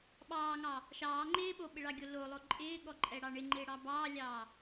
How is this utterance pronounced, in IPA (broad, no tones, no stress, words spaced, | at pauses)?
ɓɑːŋɑ | ʃɑː ŋ͡ǃɪː ɓoɓɪɭɑɡʲo lolˠo ǃʼɪːɠɔǃʼɛɽɑ ɳɪŋ͡ǃɪːɽɑ bɑːlʲɑː